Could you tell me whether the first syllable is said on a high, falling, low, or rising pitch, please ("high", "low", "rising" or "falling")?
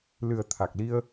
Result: low